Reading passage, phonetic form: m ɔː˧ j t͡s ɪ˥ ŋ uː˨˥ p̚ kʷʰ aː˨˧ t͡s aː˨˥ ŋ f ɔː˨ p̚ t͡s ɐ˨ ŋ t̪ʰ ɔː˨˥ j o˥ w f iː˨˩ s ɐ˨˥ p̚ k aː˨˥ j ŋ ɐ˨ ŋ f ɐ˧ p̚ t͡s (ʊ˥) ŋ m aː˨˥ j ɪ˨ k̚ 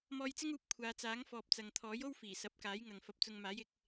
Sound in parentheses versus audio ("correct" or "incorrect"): incorrect